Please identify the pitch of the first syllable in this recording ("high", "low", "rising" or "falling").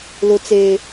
high